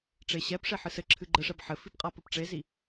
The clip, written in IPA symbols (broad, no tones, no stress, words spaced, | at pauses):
ʈ͡ʂeɕɛp ʂeħɨsɘǁʰɨ ɡ͡ǃɘʂɛb ħɘfipqʼa pɘpʈ͡ʂezi